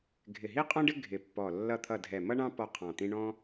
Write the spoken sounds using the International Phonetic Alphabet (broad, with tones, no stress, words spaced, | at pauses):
ɡʱɪ˧˩ɦi˥qʼɔ̃˥ɖɪ˥ ɡʱɪ˧˩pːɔ˧˩ lːʌ˧˩t̪ʰʌ˧˩ dʱɛ˧˩mʌ˥ɳɑ̃˥ pɔ˥qʰɑ̃˧˩t̪ĩ˥ ɳɔ̃˥